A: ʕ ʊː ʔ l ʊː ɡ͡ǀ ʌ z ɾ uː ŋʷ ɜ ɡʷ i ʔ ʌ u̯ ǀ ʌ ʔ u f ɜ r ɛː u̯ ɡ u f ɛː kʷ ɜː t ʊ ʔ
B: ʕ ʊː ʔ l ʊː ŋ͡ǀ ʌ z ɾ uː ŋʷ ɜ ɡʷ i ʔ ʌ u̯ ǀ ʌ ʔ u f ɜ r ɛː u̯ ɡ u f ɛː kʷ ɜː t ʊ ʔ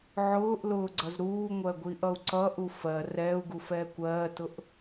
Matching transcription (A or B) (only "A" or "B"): A